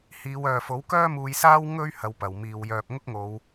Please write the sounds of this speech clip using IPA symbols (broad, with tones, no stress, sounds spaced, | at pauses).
h iː˨˧ w œː˨ f o˨˥ w k œː˥ m uː˧ j s aː˥ w ŋ ɵ˥ ɥ h ɐ˧ w p ɐ˨˩ w m iː˨ w j œː˨ p̚ ŋ ʊ˥ k̚ ŋ o˨˧ w